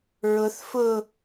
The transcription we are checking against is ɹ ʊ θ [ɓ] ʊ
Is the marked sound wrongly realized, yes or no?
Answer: yes